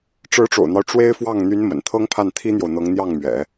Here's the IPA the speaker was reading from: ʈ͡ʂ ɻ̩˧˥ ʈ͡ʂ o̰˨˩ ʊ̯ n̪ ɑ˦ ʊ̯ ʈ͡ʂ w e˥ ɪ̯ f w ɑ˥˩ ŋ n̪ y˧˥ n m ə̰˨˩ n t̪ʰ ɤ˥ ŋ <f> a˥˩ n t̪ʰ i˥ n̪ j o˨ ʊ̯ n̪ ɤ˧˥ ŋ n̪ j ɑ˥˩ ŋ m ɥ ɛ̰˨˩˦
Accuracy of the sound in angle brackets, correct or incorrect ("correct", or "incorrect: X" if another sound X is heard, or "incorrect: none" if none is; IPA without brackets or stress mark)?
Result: incorrect: pʰ